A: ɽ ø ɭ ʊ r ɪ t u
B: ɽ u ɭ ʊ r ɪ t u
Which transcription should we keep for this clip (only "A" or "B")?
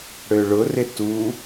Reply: A